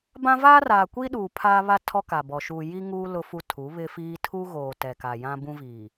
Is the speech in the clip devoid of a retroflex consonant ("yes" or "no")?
yes